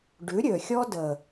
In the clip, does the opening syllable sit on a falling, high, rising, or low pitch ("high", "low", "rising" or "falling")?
rising